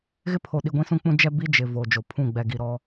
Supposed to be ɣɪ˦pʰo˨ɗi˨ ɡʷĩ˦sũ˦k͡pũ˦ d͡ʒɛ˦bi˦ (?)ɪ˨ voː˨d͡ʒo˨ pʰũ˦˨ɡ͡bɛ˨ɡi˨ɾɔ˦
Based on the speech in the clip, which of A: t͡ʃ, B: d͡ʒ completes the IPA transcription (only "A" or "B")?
B